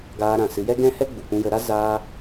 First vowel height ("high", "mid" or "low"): low